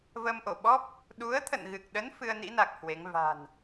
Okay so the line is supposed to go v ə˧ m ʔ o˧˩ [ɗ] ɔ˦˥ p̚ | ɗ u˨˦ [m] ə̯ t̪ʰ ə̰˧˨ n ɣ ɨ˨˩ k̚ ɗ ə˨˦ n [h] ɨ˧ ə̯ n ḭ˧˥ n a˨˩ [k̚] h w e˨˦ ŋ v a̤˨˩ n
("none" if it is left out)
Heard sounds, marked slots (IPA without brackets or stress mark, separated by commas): ɓ, none, f, k̚